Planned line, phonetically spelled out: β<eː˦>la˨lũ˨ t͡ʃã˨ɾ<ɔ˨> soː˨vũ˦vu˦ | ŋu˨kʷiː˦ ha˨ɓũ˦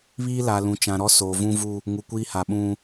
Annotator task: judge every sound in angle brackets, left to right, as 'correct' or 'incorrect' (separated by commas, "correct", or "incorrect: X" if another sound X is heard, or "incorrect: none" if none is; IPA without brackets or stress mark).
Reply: incorrect: iː˦, incorrect: ɔ˦